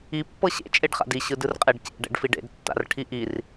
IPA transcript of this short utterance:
i pːɤɕḛ t͡ʃʼeɖχa̰di ɕɯdɯrqʼeɖcḛ ɖɛ̰ɖfiɖḛd tːa̰rʈʰiʔir

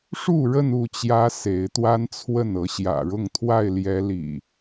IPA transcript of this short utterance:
ʂu˥˨ɻə˥˨n u˥˨ t͡ɕjä˦se˨˦ɪ̯t̪wa˦nt͡sʰwə˥˨n ɤ˨˦ɕjä̰˨˩ ɻʊ˥˨ŋt̪ʰwa˥˨ɪ̯ljɛ˨˦ lḭ˨˩

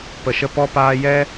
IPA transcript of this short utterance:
pə˨ʃə˧ pɔ˦paː˦ jɛ˦

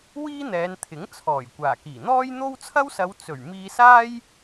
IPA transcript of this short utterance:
wiː˥n̪ɛː˨˧n t̪ʰɪ˨˥ŋt͡sʰɔː˨˩j kʷaː˨˩kiː˨˩n̪ɔː˥j n̪o˥w t͡sʰɐ˥wsɐ˨˧w t͡sɵ˨˩ɥ miː˧saː˥j

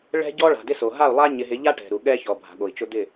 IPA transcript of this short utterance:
ɭɛ̤˦ɟɔ˦ ɭa̤˨dɪ˦so˨ ɦa˦˨u̯lˠa˦ ɲɪ˨ɦɪ˨˦ʎa˦ ʈɛ̤˨ɾu˨ ɠɛ˦çɔ˨ bʱa̤˨ɠo˨i̯t͡ʃʊ˦ d̪ɪ˦˨

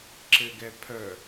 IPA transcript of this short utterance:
ǁɘɡɛpʰœ

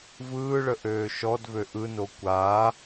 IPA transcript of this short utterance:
vɯːɭə ʔøːʃɔdvø ʔɯno kʷa

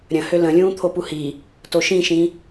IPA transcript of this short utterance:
ɾʲə̃ hølə̃lʲũː t̪ʰopuhi | toʃĩʃĩ

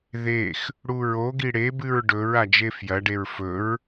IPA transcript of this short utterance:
ðex | ɽuɹoɡi ɽebɨɹ ɖɵɹ ad͡ʒefjɐɖeɹ fɵɹ

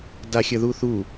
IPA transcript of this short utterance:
daxʲəðuθu

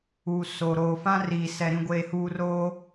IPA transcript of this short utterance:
uː˨ so˨ ɾoː˨fã˦riː˨sɛ˨ ɾĩ˨ɡʷeː˨huː˨ roː˦

